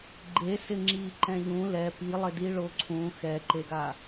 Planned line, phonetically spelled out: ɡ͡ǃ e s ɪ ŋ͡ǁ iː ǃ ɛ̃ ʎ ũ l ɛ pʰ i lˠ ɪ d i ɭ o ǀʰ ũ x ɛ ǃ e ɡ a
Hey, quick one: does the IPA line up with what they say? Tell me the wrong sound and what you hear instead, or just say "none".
pʰ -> p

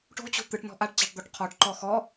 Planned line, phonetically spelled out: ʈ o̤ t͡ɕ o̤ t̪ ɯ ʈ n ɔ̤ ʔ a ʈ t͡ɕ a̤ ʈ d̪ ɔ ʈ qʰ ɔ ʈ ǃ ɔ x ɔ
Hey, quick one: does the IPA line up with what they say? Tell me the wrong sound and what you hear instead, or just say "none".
none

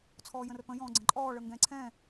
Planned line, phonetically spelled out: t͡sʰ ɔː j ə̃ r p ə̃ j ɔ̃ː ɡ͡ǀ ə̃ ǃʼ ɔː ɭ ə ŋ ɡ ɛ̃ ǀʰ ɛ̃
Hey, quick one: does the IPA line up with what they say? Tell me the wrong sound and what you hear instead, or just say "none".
none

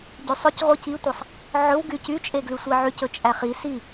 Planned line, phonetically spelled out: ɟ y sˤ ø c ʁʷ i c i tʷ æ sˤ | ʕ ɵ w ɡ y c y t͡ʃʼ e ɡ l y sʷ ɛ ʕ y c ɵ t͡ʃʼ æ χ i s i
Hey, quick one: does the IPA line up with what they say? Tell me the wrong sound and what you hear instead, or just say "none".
none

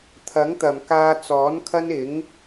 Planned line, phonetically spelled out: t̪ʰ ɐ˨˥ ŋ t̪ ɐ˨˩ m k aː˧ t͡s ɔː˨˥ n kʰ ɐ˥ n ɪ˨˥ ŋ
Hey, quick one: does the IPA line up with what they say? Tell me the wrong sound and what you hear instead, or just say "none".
none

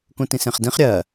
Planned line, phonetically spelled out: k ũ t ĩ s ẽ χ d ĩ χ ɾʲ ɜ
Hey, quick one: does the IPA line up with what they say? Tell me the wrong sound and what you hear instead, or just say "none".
none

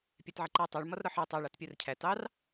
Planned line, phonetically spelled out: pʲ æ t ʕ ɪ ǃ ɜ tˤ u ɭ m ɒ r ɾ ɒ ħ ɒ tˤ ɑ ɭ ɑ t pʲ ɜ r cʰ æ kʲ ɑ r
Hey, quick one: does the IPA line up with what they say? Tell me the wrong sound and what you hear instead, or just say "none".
kʲ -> t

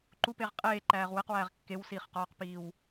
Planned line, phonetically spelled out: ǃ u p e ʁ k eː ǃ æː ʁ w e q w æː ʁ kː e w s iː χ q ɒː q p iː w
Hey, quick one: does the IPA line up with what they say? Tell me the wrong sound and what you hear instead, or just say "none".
k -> qʼ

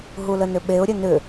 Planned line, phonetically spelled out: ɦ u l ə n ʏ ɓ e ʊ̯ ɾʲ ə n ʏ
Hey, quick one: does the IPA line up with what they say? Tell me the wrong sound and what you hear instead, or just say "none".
none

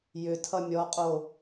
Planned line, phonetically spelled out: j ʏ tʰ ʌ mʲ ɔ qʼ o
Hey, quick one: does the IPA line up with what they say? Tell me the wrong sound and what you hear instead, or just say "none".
none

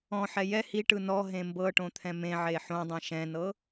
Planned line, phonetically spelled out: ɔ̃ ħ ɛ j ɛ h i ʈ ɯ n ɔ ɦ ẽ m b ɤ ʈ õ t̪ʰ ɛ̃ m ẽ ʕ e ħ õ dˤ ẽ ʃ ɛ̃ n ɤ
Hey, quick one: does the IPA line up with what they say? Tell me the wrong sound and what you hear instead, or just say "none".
none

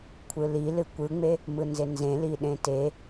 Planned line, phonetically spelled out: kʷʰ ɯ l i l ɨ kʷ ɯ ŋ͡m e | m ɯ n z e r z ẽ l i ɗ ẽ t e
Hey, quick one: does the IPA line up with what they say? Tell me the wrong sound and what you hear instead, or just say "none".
r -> n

